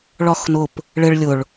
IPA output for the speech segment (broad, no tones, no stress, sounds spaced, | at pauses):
ɭ ɒ x n ʊ p | ɭ ɪ ɭ lʲ ʊ ɭ